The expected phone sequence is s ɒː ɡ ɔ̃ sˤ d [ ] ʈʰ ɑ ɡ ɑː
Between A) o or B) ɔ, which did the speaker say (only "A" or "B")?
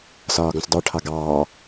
B